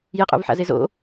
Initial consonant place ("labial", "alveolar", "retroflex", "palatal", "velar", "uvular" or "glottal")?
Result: palatal